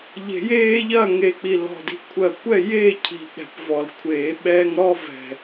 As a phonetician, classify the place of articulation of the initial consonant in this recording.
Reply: palatal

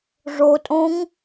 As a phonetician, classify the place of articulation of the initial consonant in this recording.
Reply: retroflex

